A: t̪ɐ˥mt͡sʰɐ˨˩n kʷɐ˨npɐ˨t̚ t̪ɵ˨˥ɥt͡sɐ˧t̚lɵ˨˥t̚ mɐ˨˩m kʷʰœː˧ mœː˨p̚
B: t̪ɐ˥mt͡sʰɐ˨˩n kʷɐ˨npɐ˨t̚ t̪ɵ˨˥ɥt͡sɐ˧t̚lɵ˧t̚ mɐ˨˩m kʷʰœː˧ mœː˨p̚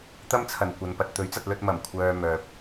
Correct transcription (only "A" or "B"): B